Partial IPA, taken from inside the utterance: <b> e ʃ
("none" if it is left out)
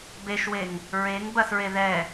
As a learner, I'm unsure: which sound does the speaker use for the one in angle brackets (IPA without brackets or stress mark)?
b